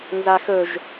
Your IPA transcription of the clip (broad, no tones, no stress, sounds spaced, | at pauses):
n z a x ɵ ʒ